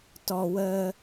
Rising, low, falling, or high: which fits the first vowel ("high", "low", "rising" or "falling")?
low